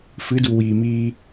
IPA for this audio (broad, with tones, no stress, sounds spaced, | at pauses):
f ɨ˨˦ d u˨ w iː˨ m iː˧